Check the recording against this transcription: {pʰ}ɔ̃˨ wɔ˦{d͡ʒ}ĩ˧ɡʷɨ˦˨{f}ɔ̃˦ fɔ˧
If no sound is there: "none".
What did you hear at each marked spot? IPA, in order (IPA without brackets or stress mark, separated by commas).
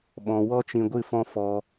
ɓ, t͡ʃ, f